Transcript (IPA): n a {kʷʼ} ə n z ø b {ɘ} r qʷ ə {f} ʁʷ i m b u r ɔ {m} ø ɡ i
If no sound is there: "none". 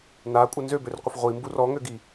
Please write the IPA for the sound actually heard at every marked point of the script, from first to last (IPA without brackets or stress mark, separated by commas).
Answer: kʷʼ, ø, f, ŋ